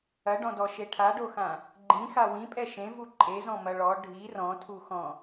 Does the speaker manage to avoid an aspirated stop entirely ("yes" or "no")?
no